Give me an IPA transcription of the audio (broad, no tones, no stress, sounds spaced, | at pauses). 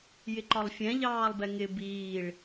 j ɪ ǃ ɒ lˠ fʲ ɛ̃ ʎ ɑː lˠ b ɛ ŋ ɪ b iː ɭ